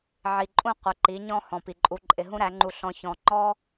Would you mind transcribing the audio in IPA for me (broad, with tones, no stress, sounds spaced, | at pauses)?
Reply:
ʕ i˨ ǃʼ ũ˦˨ qʷ ɪ˨˦ ǃ i˨˦ ɲ ɔ̃˦ h ɔ̃˨ p i˨ ǃʼ u˧ ǃʼ ɪ˧ ɦ ũ˦ ɾ æ˨˦ ŋ͡ǃ u˧ ɬ ɔ̃˧ ç ɔ̃˧ ŋ͡ǃ ɔ˦